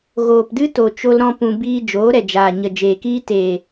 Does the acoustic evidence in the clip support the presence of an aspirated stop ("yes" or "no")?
no